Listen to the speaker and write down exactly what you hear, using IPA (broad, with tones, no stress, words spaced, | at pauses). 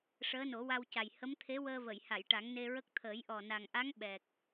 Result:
ʂəː˧˥no˨˩˦wa˧wca˨˩j hə˧˥mt̪ʰe˧˥wəː˧və˨˩˨j ha˨˩˨jʈa˨˩˦ŋne˧ɹə˦˥k̚ t̪ʰəː˨˩˦jʔɔ˨˩na˨˩ŋʔa˧˥ŋ ɓɛ˨˩k̚